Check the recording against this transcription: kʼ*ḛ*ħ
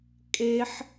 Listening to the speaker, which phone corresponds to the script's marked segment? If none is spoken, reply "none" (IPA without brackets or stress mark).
e